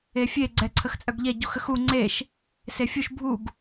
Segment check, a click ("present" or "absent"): present